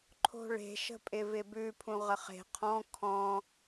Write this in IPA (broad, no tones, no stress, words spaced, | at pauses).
ǃʰo̤ɭe̤ ʃə̤pʼɪvɪbʉ pʰũʁəχe̤ qʰɔ̃ kʰɔ̃